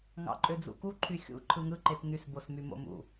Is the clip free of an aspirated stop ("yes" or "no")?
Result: no